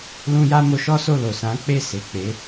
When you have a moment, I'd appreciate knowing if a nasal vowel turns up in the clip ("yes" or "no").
yes